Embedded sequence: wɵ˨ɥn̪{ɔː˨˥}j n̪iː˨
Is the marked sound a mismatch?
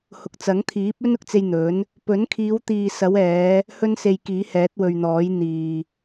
no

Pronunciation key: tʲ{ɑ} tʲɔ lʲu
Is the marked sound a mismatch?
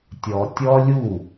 yes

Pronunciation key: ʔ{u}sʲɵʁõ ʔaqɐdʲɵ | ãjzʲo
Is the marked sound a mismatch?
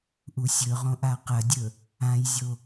no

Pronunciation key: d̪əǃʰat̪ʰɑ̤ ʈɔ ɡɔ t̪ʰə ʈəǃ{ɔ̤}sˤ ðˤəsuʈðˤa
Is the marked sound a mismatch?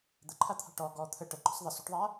no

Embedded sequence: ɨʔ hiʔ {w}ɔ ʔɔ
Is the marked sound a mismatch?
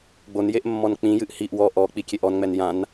no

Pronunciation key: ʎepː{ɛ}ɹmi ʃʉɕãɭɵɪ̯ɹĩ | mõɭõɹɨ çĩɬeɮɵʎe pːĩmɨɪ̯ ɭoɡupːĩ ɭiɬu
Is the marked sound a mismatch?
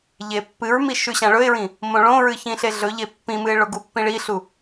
yes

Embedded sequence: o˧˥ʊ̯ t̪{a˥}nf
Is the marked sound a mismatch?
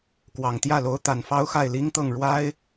yes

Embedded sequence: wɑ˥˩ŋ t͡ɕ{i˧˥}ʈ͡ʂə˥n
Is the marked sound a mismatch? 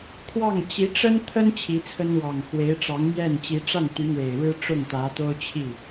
no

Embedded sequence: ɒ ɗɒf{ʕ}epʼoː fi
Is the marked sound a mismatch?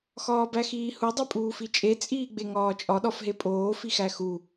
yes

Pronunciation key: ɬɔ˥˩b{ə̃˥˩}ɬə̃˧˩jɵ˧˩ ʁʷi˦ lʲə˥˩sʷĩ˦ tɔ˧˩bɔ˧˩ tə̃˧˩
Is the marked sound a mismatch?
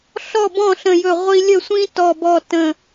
yes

